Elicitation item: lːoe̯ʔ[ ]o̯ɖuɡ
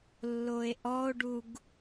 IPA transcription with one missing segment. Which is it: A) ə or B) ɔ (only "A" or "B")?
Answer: B